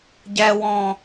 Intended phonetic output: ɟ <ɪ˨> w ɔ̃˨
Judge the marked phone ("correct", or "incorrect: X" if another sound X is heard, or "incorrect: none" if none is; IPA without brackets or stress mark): incorrect: ɛ˨